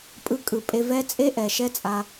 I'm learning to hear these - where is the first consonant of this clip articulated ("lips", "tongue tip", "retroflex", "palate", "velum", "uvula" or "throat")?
lips